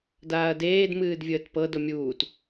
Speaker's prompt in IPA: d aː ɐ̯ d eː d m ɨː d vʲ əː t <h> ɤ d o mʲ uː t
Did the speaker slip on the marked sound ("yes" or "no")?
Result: yes